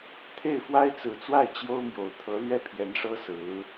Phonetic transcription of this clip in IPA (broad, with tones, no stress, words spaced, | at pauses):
t̪ʰe˥˩ɪ̯fwa˥ɪ̯t͡sɹ̩˨˩t͡swa˥˩ɪ̯ t͡ɕjo˥ʊ̯mjo˨˩ʊ̯ t̪ʰɤ˧˥lɥɛ˥˩ pʰjɛ˧˥nʂɤ˥ sɹ̩˧˥